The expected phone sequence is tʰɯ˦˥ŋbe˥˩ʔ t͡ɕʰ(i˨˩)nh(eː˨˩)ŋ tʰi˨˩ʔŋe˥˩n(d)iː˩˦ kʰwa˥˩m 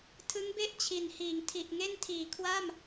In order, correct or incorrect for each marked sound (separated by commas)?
correct, incorrect, incorrect